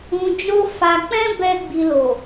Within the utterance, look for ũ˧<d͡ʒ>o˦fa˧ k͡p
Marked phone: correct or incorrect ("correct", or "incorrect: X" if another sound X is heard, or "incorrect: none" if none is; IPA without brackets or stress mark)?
correct